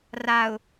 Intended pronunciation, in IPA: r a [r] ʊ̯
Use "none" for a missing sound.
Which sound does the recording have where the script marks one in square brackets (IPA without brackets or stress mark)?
none